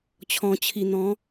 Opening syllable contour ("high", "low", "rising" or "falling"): low